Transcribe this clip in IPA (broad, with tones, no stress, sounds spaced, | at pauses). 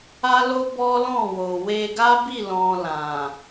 a˦ l o˦ b ɔ˦ l ɔ̃˦˨ w o˨ w e˧ ɡ a˦ b i˦˨ l ɔ̃˧ l ã˨